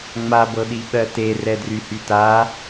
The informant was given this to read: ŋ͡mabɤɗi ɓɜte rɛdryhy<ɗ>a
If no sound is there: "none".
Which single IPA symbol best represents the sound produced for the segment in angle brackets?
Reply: t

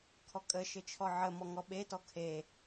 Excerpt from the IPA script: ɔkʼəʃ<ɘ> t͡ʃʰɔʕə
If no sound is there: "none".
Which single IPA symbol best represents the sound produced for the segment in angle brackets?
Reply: ɘ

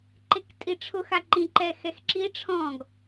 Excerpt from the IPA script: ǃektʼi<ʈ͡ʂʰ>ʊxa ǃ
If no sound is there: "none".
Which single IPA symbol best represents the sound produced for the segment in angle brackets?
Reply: ʈ͡ʂʰ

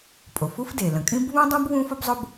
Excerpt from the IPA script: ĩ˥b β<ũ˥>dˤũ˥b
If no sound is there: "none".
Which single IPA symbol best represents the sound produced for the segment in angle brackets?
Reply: ũ˥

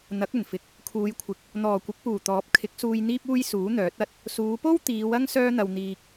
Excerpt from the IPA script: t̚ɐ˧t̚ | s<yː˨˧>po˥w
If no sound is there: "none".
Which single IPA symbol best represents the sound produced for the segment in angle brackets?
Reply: uː˨˧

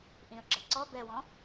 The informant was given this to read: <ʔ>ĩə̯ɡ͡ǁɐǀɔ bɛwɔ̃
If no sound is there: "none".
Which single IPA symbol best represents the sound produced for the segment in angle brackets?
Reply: ʔ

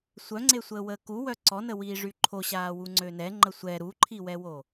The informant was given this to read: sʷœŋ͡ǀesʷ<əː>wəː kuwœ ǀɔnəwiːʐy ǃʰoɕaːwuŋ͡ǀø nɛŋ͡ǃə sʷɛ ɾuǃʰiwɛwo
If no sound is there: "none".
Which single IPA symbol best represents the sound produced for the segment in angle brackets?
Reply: əː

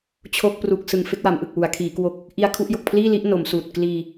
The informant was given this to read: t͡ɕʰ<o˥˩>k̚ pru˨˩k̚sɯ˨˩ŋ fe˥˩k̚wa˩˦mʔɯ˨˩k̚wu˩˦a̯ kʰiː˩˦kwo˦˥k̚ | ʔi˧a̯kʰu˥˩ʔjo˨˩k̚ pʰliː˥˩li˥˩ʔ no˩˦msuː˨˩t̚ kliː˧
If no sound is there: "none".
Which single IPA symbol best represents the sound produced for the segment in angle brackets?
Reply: o˥˩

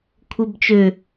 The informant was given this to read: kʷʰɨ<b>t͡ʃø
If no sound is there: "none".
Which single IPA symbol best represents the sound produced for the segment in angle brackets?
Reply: b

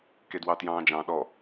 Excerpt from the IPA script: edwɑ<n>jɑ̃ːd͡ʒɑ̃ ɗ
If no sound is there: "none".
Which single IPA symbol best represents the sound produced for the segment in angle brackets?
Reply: t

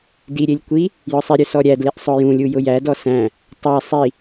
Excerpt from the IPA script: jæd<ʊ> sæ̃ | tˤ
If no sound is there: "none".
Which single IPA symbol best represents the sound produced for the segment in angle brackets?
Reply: ɔ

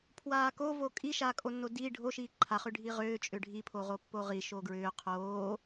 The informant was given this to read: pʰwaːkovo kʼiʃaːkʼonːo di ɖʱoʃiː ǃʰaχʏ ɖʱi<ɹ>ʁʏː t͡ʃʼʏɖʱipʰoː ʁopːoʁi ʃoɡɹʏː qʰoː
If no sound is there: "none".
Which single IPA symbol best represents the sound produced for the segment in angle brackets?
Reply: none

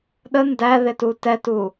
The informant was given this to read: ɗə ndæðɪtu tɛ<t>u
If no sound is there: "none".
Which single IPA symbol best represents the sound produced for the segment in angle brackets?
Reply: t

